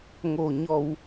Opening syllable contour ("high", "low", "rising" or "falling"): low